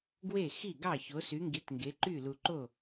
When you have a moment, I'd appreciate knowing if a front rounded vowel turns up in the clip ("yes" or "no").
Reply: yes